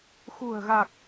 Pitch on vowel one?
low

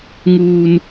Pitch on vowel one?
high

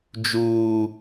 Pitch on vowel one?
high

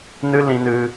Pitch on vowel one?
high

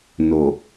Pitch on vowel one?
low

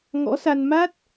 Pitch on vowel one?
rising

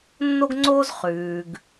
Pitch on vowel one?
high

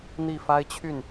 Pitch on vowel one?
falling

